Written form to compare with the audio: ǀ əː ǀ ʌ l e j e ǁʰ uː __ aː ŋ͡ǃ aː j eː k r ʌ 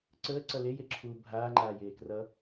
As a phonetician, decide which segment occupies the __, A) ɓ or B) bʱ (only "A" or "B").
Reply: B